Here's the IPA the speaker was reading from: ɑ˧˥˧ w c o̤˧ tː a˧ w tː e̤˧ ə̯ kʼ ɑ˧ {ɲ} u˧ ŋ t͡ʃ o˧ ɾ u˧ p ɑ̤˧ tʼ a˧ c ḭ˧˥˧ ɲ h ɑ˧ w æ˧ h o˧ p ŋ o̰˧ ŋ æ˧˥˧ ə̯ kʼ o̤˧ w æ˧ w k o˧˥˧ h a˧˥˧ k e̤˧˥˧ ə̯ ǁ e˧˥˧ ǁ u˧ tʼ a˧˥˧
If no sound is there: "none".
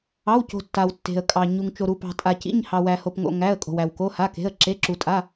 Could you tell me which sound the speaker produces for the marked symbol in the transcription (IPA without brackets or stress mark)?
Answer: ɲ